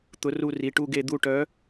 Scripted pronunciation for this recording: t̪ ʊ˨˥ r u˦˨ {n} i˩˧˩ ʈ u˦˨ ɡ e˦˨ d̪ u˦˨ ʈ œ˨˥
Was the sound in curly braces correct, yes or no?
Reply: no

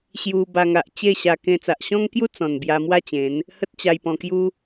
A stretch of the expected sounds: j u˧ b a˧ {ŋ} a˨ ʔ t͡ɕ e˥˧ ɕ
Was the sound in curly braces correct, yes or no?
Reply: yes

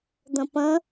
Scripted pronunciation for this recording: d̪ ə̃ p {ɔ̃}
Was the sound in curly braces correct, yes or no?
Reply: no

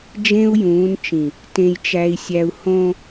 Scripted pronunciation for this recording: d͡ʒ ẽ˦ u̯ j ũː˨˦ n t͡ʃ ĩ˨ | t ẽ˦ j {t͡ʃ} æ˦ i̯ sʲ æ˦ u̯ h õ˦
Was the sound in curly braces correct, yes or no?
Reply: yes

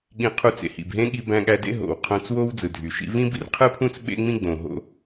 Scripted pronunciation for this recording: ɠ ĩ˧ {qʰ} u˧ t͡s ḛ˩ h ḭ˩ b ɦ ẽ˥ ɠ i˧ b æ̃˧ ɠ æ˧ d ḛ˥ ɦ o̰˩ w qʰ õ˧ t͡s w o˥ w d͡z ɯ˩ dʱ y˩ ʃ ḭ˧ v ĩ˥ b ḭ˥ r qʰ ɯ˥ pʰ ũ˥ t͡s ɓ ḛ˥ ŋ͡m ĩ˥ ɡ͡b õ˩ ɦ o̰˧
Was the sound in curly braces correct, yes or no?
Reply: yes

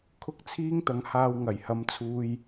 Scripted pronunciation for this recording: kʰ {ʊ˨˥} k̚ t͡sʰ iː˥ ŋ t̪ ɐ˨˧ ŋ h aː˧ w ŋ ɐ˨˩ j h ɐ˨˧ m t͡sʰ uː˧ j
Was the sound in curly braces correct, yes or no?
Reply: no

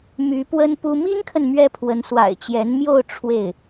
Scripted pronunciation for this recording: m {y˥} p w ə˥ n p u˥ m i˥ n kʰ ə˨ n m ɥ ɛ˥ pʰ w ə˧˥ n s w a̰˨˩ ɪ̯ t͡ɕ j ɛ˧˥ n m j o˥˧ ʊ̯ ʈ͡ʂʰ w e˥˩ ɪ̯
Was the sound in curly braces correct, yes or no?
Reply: no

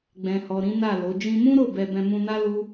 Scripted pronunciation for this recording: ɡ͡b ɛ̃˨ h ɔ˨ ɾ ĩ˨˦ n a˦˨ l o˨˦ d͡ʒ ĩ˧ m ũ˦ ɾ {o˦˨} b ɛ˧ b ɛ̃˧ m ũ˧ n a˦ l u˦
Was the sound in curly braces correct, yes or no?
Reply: yes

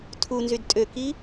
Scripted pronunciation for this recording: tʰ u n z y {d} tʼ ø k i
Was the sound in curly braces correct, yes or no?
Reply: yes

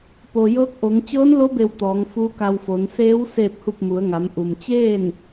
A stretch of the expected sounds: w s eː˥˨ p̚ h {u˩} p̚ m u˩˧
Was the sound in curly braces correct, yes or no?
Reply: no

